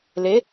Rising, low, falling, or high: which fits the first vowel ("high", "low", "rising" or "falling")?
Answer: rising